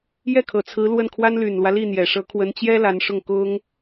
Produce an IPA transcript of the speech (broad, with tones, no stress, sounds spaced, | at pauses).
j ɛ˥˩ kʰ ɤ˨˩ t͡sʰ ɹ̩˧˥ l w ə˥˩ n kʰ w a˥ n l y˨˩ n l w ä˦ l i˥˩ n̪ j ɛ˨˩ ʂ ɤ˧˥ kʰ w ə˧˥ n t͡ɕ j ɛ˥ l a˧˥ n ʂ ʊ˥˩ ŋ k ʊ˥ ŋ